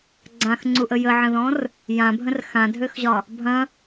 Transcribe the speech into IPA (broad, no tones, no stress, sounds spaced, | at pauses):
ɡ͡ǀ ã x ŋ͡ǀ u ʔ ə j ə ʕ ə̃ ð ɔ̃ r | j ã bʱ ə̃ r x ã dʱ ø x ʑ ɒ | bʱ ɐ̃